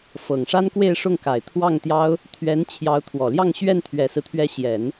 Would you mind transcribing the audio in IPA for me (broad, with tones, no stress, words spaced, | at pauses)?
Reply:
fɤ˨˩ŋʂa˥nkwe˥˧ɪ̯ ʂʊ˥˩ŋka˨˩ɪ̯t̪ʰwɑ˥˩ŋt̪jɑ˥ʊ̯ | t̪ʰɥɛ˧˥n t͡ɕʰjɑ˧˥ʊ̯t̪ʰwɔ˨˩ljɑ˥˧ŋ ɕɥɛ˥˩nt̪ʰɥɛ˨˩sɹ̩˦t̪ʰɥɛ˧˥ ɕjɛ˨˩˦n